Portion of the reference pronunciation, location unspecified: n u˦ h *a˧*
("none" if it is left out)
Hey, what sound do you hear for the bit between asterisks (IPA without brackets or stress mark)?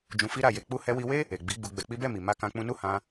ã˧